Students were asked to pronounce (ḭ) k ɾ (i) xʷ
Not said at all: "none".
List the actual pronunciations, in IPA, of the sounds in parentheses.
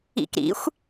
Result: ḭ, ḭ

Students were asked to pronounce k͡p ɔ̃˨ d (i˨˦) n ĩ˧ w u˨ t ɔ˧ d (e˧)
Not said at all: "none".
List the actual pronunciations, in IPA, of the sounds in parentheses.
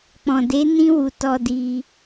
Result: e˨˦, i˧

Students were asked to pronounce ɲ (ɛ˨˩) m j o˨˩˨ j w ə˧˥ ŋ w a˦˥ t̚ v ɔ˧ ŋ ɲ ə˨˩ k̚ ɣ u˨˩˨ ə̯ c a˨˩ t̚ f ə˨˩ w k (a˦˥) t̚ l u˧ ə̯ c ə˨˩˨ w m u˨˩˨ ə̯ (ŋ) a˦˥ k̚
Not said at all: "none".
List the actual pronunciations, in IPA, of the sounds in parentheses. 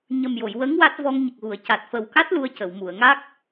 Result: ə˨˩, a˦˥, ŋ

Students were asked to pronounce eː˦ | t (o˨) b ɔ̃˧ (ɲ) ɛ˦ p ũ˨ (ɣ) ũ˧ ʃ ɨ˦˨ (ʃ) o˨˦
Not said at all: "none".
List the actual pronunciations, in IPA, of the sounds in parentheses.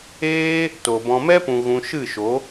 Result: o˨, m, ɣ, ʃ

